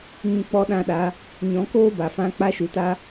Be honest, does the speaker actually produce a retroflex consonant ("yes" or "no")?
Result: no